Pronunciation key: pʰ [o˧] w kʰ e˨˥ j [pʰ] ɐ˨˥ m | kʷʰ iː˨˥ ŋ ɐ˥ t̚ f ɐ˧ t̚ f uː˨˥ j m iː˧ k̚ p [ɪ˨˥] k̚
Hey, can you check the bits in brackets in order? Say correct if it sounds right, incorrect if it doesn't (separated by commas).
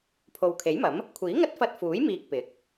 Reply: incorrect, incorrect, correct